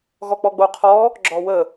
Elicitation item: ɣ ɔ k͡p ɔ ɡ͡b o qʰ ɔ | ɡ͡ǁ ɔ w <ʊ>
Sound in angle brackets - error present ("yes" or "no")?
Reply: yes